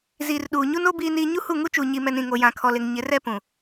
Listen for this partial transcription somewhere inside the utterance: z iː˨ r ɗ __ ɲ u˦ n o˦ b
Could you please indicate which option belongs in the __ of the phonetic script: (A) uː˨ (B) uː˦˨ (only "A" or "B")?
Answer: A